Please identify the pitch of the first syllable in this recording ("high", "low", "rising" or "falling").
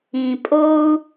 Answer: low